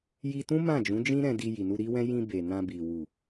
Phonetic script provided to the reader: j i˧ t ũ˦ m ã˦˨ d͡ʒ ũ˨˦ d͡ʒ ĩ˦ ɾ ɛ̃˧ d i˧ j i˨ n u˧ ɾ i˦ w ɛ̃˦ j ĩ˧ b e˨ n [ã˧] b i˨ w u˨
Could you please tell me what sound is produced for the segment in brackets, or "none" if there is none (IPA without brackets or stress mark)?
ã˧